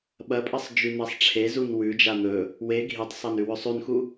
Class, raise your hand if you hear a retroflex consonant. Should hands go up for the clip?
yes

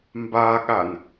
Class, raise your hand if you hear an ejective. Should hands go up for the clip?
no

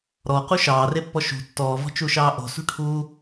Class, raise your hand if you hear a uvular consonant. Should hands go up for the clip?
yes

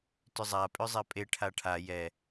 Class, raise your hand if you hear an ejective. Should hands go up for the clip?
yes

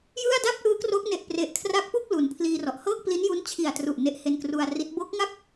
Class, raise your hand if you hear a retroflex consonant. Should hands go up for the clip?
no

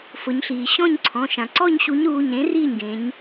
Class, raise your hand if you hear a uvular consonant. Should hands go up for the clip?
no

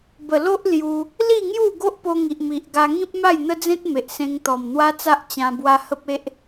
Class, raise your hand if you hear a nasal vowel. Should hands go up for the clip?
yes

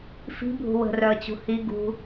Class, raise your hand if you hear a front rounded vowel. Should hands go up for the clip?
yes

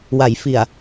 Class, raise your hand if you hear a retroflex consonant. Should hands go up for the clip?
no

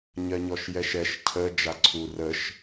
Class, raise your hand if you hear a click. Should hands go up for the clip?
yes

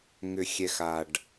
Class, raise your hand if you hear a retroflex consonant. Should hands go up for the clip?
yes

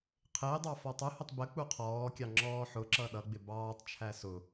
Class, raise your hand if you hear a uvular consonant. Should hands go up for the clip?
yes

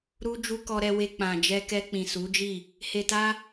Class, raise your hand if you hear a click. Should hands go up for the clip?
no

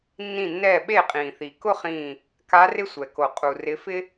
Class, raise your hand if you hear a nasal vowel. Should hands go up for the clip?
yes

